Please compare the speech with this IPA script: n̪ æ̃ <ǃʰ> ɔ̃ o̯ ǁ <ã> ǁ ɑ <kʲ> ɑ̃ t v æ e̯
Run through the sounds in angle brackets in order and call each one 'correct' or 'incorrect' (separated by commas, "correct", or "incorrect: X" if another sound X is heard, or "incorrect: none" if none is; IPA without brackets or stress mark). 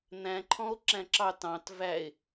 correct, incorrect: æ̃, incorrect: t